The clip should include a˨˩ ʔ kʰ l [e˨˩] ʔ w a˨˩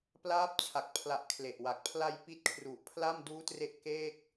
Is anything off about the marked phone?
no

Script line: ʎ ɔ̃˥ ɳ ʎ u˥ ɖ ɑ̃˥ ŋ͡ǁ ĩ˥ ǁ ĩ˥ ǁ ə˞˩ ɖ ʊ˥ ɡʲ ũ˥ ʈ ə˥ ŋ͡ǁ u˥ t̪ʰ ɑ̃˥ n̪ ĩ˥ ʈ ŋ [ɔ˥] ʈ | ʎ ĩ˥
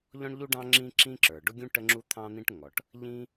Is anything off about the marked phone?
yes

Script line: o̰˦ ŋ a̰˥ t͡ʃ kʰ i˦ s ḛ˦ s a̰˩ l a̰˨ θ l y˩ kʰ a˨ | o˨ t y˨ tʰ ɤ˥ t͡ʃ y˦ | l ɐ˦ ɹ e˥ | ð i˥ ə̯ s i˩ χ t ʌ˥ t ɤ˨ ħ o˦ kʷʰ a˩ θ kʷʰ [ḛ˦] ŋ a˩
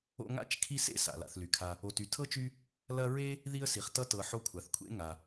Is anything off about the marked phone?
yes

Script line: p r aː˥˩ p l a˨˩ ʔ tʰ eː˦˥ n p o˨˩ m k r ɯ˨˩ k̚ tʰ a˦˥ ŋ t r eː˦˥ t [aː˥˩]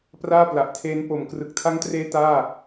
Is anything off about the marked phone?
no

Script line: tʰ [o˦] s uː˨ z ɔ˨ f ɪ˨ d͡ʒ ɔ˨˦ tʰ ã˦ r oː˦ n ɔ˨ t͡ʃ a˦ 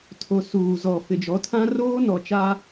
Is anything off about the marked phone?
yes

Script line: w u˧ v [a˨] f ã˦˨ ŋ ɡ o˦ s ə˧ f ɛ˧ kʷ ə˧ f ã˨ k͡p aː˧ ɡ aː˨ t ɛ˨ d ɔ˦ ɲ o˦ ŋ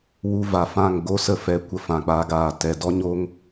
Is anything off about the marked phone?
no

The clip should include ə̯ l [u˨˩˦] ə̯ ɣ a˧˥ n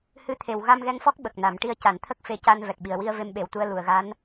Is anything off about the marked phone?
yes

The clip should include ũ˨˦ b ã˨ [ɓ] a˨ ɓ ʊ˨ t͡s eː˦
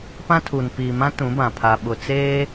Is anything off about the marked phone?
yes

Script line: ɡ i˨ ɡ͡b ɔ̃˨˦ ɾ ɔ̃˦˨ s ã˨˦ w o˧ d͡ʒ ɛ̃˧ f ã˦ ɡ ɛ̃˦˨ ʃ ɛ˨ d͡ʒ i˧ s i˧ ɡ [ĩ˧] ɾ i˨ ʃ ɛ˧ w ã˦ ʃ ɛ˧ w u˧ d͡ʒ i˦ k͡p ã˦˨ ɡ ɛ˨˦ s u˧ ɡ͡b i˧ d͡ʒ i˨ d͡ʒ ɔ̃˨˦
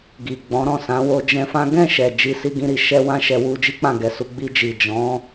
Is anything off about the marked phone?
no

